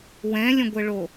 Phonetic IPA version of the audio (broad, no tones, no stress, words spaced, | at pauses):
wɛ̃lʲə̃ɡʷəɭo